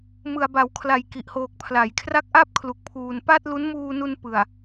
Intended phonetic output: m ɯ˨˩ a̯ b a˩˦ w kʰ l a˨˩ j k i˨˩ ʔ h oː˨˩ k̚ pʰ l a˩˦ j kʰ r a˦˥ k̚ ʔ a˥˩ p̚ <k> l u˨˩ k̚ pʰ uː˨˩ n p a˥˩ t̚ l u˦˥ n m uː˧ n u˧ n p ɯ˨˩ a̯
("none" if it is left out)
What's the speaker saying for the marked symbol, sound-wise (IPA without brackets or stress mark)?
kʰ